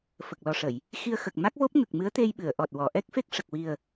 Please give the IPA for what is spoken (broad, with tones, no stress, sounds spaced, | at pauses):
f ə˨˩ k̚ l ɔ˨˩ ʂ ə˨˩˨ j | x i˧ ə̯ x ə˨˩ k̚ m a˦˥ k̚ v o˦˥ p̚ ŋ ə˨˩ k̚ m ɨ˧˥ ə̯ t̪ e˧ j ɓ ɨ˨˩˨ ə̯ ʔ ɔ˨˩ t̚ w ɔ˨˩˨ ʔ ɛ˦˥ k̚ f e˦˥ k̚ ʂ ə˨˩ k̚ w i˨˩ ə̯